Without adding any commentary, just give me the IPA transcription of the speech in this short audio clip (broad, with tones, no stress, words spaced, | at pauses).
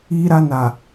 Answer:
iː˦ɾa˦ na˨